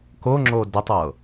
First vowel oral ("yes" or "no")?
yes